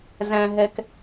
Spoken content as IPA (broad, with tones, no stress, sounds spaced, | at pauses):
z æ̃˨ ɦ ɛ˨ k